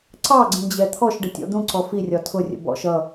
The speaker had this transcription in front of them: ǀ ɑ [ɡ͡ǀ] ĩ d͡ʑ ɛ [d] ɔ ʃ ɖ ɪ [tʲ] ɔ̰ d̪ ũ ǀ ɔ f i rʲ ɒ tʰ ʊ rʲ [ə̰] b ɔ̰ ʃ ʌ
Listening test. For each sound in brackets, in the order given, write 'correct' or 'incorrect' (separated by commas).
correct, incorrect, correct, correct